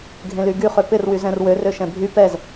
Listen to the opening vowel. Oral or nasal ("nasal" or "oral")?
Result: nasal